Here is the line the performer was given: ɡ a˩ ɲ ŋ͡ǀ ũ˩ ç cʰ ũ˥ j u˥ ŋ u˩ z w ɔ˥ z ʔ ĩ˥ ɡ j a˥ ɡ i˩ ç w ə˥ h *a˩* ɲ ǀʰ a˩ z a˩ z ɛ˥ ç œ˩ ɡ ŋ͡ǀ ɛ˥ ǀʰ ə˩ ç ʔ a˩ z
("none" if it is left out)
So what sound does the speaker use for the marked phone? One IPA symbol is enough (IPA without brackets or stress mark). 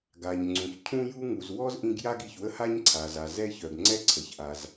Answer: a˥